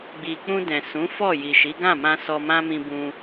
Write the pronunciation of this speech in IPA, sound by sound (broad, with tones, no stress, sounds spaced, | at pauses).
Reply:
ɡ͡b i˧ k͡p ũ˧ d ɛ̃˨ s ũ˨˦ f ɔ˦˨ j i˨ ʃ i˨˦ ɡ ã˦˨ m ã˧ s ɔ˧ m ã˦ m ĩ˧ b ũ˧